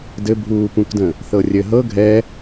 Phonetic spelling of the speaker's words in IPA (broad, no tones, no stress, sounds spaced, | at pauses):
d ɘ bʱ uː p ũ k d ə̃ | θ ɤ rʲ ɘ ɦ ɤ ɡʱ ɛ